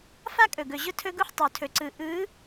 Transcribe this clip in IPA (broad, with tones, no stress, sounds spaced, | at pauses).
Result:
f a˦ kʼ ɵ˨ ɡ ɵ˨ ʑ ʊ˦ tʰ ɵ˦ ɡ u˦ ħ tˤ u˨ tʰ ɵ˨ ǀ ɯ˨ ʔ ɯ˨˦